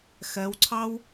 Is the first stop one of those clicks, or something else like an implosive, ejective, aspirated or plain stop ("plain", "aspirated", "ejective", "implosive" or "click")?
click